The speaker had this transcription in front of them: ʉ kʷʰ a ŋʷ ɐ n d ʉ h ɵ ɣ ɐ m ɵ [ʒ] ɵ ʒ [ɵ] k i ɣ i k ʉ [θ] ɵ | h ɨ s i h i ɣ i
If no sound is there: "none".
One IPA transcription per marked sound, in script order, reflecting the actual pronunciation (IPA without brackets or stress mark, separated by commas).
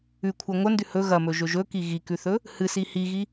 ʒ, ɵ, θ